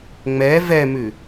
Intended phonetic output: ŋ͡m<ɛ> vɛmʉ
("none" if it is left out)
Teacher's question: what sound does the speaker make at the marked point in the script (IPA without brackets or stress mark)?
ɛ